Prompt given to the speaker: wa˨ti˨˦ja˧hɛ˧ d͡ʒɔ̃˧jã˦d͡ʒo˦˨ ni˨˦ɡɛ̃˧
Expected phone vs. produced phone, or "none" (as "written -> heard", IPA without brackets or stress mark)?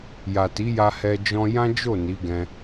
w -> j